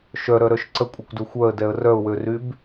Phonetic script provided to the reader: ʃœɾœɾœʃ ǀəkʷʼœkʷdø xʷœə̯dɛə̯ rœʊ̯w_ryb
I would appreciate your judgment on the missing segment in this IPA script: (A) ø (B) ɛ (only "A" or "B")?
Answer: A